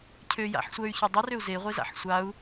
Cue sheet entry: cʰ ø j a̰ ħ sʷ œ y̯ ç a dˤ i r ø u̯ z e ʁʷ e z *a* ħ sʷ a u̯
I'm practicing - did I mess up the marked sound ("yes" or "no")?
yes